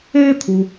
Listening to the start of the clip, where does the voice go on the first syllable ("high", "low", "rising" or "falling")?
high